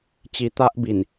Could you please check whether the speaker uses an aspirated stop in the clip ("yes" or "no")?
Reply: no